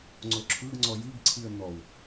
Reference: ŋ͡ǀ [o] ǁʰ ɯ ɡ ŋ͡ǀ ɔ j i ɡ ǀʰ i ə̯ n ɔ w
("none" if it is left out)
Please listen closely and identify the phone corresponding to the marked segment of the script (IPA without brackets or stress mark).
o